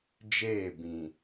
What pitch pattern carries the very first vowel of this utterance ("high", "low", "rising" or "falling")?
falling